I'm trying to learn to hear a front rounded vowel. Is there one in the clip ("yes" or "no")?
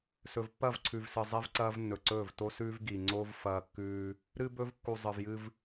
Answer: no